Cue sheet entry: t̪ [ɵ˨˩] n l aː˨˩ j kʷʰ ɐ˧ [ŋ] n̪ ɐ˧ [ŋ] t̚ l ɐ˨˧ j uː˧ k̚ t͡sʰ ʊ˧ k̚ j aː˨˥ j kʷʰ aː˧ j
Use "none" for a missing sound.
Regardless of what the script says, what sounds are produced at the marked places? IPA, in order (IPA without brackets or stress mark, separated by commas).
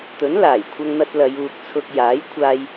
ɵ˨˥, ŋ, none